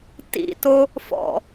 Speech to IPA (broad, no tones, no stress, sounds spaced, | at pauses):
t ḭ t o | f ɔ̰